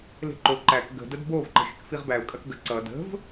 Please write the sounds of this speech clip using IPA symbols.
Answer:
le̤ǃo ǃæk ɡə̤ dədbov ǃə̤xʲəkfiʁbæʊ̯ kʼɐkɡə ǀʌ də̤v

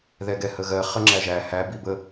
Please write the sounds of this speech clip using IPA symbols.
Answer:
ðɛɡɛhəɣɜ χəŋ͡ǁæʒæ hæ bibə

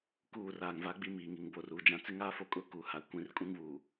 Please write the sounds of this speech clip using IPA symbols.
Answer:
kuː˦˨raː˨ŋva˦ ɡ͡bi˦miː˨ŋi˨ŋ bo˨r uː˨d͡ʒã˨ t͡sɪ˦ŋaː˦fo˨kʼʊ˦˨ ku˨ ha˨kʷĩ˨r kʼũ˦ŋβuː˨

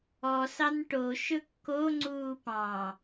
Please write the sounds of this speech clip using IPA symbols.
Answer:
ɔsɑn ʈoʃɵ kːoŋ͡ǀuː pɑ̃

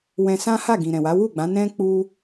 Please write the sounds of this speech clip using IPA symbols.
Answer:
wɛ̃˧ sã˦ha˦˨ɡĩ˨ ɾɛ̃˨wa˨˦ wu˦˨ɡ͡bã˨˦ nɛ̃˦ k͡pu˦

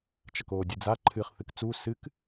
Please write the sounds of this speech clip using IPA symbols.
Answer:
t͡ʃɐkoːdʲɨd͡za ǃʰɨχ θɨkt͡su sɨk

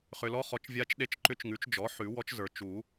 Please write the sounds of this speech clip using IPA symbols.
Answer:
χʏ˨lɔ˧˥χɔ˩˥t͡ʃ vʲa˧˥t͡ʃɗe˧˥t͡ʃǃʏ˧˥t͡ʃ ŋʉ˩˥t͡ʃd͡ʒɔ˩˥ ħʉ˨˩˦ wɔ˧˥t͡ʃzə˞˨ t͡ʃu˨˩˦

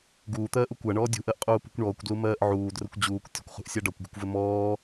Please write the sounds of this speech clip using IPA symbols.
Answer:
ɡuːt̪ɜːʔu kʷaɳɔː dʲṳʔɜʔqʼuːpṳkʷ ɳɔːkʷdlumɜːʔ ʕuːdrəkʷ d͡ʑuːkʷ tʲə̤kʷχṳʔsʲa ɖɒkʷɡṳkʷvɘ mɔː

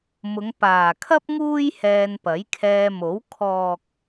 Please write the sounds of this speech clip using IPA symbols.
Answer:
mʊ˨˧ŋ paː˨kʰɐ˥p̚ ŋuː˥j hɛː˧npɐ˨˥jkʰɛː˧mo˨˥w kʰɔː˨k̚

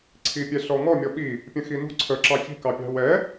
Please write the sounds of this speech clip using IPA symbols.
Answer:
ǀʰipʲɛɬɔŋɔ mʲɔɓi | pʲə̃xinṳ ǀʰəǁɑ çi̤kɑpʲɑ̤ wɛ

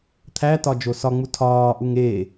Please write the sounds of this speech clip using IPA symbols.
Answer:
t̪ʰætɒ d͡ʒosɒŋ͡mu tʰɒːʔuŋ eː

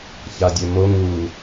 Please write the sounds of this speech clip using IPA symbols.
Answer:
çadʲømo ŋu

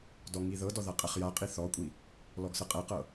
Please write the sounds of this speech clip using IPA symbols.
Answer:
dɔŋiðɤdɔ ðaqʼɛχjaqʼi θɔkʷʼi | lɔɡsɤqʼɛqɤ

